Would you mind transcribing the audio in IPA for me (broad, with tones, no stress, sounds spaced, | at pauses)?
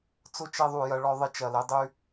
t͡s ʊ˦ t͡ʃ e˧ ðˤ u˨ j ɐ˧ ɭ ɔ˧ ðˤ ɪ˧ t͡ʃ ɐ˨ l e˧ dˤ y˧